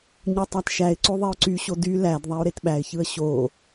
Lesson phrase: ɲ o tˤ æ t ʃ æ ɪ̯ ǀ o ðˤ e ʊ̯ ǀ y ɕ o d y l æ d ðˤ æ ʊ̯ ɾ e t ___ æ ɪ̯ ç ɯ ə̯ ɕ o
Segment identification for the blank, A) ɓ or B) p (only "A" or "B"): A